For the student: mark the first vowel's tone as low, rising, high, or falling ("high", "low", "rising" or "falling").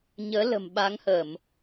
rising